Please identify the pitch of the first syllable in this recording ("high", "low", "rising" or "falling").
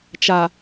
low